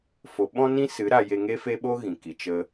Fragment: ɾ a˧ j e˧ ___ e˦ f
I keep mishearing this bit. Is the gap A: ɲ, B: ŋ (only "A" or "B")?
B